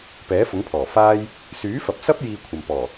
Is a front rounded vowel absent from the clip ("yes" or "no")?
no